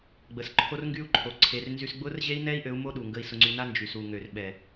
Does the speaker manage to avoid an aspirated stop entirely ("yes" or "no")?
no